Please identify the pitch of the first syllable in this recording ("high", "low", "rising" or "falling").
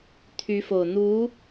rising